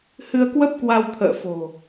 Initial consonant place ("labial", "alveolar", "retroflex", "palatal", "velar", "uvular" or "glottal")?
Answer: glottal